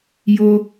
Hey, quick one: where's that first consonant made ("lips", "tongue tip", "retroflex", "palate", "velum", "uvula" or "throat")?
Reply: palate